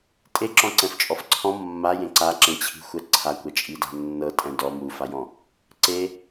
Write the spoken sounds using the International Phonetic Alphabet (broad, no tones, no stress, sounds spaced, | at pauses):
tʼ e ǁ ɔ̃ ǀ ɛ̃ f t͡ʃʼ ɔ f ǀʰ ɔ̃ mː a j ẽ ǀ a ǁ ẽ t͡ɕʰ i̤ xʷ ɛ ǀʰ a kʷ ɛ t͡ʃʼ i d a̤ nː ɤ tʼ ɛ̃ d ɔ m u f a j ɔ̃ | ǀ e